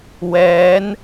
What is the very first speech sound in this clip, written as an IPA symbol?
w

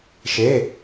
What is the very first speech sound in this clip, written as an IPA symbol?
ʃ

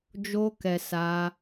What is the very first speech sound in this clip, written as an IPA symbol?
d͡ʒ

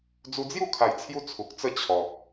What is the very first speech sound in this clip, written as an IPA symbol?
d͡z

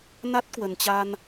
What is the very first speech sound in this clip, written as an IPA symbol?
n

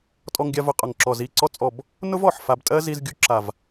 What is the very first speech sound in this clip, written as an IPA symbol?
tʼ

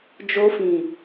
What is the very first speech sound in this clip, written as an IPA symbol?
d͡ʒ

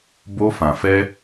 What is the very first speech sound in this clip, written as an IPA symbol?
b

